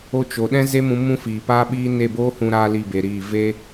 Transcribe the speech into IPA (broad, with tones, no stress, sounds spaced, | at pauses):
o˦ t͡ʃ o˨ ɗ ɛ̃˦ z e˦ m ũ˧ m ũ˦ f iː˨ p aː˦ ɓ iː˦ n e˦˨ b oː˦ h ũ˧ ɾ aː˧ l i˦˨ b e˨ ɾ iː˦˨ v e˦